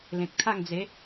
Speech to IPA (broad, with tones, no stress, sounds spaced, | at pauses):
l ẽ˨ k̚ t̪ʰ a˥˧ ŋ d͡z e˨˦